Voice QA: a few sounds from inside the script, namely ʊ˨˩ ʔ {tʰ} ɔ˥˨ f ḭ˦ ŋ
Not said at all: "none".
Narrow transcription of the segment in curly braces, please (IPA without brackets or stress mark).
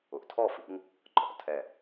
tʰ